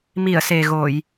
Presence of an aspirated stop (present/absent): absent